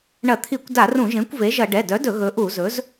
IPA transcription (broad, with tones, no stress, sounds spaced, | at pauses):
ɳ ɐ˧˩˧ t̪ʰ i˧˩˧ kʷ d a˧˩˧ r ũ˧˩˧ ʒ ẽ˩˥ kʷ v e˩˥ ʒ ɐ˧˩˧ ɖ ɛ˩˧˩ d œ˩˥ d ɵ˧˩˧ ɣ ɵ˩˥ ʔ u˧˩˧ z ɵ˩˥ z